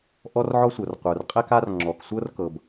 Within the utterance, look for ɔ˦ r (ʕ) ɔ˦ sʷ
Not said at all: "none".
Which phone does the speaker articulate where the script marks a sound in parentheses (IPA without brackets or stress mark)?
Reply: ʕ